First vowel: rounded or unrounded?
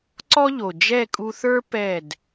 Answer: rounded